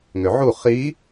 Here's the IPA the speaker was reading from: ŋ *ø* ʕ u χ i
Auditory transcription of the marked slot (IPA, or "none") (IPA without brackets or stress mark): ø